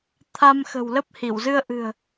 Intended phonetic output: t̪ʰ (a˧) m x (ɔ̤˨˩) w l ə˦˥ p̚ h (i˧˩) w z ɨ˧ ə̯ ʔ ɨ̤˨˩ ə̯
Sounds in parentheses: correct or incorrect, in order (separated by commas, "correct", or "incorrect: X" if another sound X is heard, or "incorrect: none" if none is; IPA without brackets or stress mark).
correct, incorrect: ə̤˨˩, correct